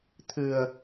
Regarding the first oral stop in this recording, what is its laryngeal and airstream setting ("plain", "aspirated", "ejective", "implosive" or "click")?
aspirated